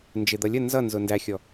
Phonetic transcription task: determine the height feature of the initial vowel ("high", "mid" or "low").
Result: high